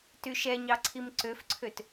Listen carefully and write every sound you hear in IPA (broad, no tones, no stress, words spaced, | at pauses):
tyʃɛɲɑ ǀʰimǀøfǀʰøt